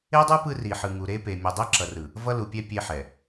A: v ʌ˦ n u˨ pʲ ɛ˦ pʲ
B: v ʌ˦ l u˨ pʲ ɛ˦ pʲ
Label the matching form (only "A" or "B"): B